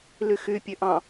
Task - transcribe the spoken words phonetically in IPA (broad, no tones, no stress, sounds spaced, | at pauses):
l y x y pʲ ø ʔ ɑ̃